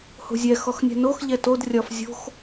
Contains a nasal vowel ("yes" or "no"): no